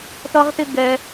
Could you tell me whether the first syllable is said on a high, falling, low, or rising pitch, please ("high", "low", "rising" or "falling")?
high